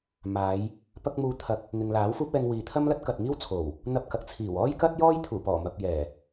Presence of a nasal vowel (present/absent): absent